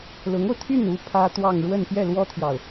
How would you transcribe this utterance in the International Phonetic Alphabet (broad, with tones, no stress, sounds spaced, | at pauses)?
l ʊ˧˥ ŋ o˧ ʊ̯ t̪ʰ y˥˩ n u˥ pʰ ä˥ t̪ w ɑ˥˧ ŋ ɻ w ə˥˧ n p j ɛ˥˩ l w ɔ˥ t̪ʰ j ɑ˨ ʊ̯